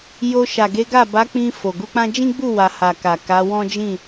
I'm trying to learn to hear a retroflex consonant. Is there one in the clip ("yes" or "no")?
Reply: no